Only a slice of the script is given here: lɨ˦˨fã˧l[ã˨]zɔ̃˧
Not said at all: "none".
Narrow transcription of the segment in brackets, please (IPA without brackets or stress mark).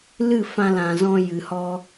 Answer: ã˨